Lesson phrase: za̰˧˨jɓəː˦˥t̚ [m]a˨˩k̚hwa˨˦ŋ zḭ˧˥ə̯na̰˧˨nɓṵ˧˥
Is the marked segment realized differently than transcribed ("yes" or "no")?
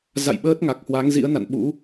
yes